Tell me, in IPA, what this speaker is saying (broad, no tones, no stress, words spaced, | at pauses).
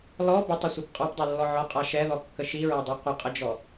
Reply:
lɔ bətˤəsʷip qʼɔpdˤɜlːɔ ʕɔqʼa ʃɛðɔkːə ʃiɹɜdˤi qʷəqʼəd͡ʒɔ